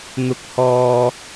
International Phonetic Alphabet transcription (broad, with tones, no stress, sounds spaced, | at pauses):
n̪ ʊ˨˥ k̚ h ɔː˨